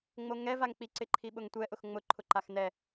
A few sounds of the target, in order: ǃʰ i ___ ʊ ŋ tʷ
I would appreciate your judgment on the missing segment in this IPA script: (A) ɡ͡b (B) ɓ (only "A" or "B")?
B